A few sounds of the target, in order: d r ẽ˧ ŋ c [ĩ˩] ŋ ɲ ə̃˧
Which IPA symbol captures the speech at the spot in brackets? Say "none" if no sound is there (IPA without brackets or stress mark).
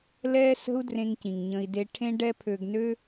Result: ĩ˩